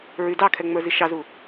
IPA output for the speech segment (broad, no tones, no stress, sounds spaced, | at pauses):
ɹ y d ɑ kʰ ɛ ŋ͡m ə˞ z i ʃ ɑ z u